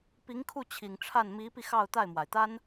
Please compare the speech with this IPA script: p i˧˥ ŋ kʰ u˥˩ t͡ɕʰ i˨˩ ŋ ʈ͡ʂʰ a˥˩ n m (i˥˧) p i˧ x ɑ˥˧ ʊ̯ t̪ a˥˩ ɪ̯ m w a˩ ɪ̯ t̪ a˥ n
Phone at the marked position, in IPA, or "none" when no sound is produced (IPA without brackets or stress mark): i˧˥